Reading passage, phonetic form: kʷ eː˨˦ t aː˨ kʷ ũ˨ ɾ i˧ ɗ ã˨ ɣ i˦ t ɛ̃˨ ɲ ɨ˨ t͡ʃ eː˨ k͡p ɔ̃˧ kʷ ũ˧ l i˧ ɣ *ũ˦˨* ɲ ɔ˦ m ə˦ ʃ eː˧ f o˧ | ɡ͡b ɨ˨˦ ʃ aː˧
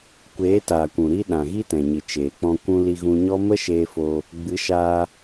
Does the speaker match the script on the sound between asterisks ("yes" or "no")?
no